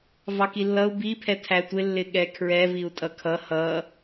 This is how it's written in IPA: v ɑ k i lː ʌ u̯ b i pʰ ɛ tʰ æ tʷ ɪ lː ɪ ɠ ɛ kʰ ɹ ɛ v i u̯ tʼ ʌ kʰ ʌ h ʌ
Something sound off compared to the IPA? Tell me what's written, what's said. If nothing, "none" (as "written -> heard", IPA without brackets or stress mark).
none